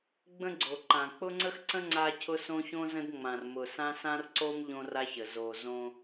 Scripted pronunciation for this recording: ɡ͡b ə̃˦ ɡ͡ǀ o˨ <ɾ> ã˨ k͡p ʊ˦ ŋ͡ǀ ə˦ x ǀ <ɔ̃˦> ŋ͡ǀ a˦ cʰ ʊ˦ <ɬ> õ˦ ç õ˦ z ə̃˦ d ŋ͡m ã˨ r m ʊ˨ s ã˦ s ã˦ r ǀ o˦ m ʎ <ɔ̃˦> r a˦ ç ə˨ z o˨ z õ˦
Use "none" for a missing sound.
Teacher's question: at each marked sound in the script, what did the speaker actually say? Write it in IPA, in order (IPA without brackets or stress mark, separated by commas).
ǃ, ə̃˦, s, õ˦